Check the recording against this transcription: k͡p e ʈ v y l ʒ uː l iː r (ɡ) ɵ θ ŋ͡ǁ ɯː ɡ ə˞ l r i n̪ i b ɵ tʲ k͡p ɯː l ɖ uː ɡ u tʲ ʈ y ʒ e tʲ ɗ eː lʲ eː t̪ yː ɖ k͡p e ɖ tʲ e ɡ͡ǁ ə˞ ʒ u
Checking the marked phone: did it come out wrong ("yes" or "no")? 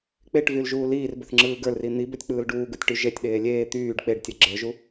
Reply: yes